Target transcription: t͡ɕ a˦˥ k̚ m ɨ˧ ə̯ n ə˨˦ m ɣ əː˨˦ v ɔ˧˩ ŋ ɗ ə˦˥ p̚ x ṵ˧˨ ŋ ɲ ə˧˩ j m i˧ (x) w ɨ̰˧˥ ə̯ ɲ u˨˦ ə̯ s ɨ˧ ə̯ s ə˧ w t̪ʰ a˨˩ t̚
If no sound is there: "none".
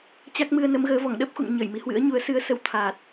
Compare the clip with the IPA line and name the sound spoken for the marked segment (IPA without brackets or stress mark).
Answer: h